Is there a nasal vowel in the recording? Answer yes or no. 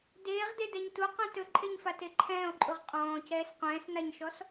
yes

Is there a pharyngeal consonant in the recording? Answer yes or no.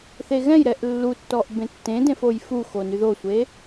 no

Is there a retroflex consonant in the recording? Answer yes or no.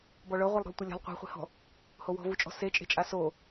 yes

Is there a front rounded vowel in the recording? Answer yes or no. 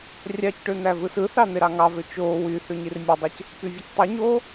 yes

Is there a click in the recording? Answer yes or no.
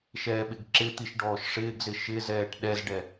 yes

